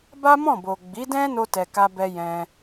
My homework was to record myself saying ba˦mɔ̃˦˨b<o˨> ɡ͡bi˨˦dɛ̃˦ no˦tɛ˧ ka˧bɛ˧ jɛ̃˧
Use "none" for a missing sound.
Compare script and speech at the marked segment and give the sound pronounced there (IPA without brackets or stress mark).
o˨